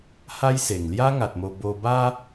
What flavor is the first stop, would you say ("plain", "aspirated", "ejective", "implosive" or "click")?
plain